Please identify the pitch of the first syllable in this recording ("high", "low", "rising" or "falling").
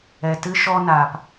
low